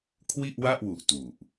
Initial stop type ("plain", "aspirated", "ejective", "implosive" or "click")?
aspirated